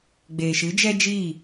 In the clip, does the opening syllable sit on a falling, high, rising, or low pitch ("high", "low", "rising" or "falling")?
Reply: low